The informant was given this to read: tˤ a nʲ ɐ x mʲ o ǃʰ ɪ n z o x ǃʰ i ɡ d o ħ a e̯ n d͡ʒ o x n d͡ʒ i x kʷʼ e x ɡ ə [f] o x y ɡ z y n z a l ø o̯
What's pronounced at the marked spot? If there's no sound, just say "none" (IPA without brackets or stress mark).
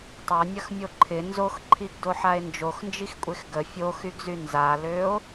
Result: fʲ